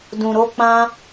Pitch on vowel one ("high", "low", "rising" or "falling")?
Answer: low